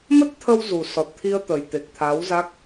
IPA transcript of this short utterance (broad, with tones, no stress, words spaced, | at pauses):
mə˦˥t̚t̪ʰə˧w zu˨˩sɔ˨˩t̚t̪ʰi˧ə̯ t̪ə˨˩jt̪e˨˩k̚t̪ʰa˨˦w za˦˥k̚